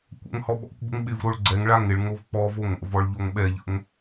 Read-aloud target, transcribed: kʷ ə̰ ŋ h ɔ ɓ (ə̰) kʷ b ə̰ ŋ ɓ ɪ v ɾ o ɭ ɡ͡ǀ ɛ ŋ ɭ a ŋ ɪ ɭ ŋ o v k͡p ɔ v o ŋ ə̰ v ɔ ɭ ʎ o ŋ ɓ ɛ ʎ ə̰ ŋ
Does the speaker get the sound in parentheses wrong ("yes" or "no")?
yes